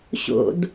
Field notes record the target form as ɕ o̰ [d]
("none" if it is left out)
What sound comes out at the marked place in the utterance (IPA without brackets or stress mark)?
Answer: d